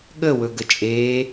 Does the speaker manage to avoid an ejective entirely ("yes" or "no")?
no